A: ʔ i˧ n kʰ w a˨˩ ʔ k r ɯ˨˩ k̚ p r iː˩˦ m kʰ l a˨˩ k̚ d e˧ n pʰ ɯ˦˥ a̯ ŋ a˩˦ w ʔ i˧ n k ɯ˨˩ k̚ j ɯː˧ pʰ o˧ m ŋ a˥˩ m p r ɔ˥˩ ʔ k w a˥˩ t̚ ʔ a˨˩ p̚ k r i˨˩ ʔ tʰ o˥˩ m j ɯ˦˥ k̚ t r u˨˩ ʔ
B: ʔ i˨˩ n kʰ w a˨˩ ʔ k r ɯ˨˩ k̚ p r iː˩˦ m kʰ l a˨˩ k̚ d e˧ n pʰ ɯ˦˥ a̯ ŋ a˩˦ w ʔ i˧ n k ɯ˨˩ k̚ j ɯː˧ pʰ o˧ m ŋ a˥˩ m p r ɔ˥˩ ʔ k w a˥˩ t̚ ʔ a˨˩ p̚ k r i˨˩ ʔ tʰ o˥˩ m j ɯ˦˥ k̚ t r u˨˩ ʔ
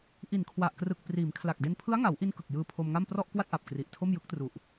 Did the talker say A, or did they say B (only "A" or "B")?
B